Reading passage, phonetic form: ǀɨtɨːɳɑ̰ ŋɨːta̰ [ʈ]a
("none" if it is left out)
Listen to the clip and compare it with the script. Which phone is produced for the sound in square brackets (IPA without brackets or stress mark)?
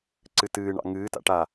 ʈ